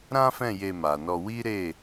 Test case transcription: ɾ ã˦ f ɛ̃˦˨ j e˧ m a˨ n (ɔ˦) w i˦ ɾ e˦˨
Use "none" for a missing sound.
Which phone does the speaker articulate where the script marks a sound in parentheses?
ɔ˧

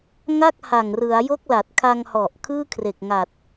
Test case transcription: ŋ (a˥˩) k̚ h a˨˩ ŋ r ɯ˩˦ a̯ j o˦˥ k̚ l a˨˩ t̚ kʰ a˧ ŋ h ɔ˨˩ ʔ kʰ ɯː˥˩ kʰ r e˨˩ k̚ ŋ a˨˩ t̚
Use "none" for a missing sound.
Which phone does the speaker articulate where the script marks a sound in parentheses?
a˥˩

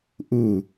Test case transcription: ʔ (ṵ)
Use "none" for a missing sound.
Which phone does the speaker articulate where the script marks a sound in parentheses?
u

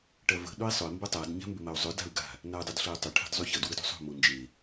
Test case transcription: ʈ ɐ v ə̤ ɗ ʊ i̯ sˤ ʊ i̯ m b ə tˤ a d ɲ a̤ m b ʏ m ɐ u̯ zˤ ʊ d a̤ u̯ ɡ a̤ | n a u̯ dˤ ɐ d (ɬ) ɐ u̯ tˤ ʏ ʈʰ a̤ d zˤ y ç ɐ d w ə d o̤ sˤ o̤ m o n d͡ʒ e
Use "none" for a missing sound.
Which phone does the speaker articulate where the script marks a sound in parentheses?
ɬ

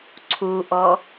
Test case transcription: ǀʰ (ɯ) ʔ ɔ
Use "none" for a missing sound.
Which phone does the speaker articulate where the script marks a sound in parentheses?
u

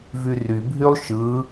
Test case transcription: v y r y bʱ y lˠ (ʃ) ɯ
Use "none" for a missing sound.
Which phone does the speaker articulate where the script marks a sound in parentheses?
ʃ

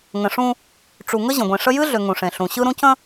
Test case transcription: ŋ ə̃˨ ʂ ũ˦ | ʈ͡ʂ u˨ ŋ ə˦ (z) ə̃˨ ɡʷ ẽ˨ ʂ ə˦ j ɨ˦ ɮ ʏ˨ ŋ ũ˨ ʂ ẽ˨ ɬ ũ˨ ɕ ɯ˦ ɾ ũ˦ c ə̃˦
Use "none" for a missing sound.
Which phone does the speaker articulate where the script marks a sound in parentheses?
ʑ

